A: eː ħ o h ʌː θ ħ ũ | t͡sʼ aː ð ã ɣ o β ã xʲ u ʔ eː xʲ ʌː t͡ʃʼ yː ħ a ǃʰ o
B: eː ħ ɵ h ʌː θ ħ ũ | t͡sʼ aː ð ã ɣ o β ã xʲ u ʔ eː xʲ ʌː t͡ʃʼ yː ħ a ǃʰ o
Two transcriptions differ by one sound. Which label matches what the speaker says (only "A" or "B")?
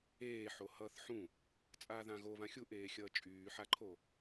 A